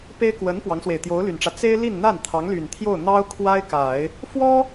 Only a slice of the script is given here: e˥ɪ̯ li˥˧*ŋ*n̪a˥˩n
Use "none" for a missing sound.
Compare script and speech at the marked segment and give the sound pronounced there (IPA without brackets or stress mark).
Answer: n